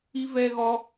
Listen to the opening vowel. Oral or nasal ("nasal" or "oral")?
oral